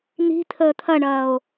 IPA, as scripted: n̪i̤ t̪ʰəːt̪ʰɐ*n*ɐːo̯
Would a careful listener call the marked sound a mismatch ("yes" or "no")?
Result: yes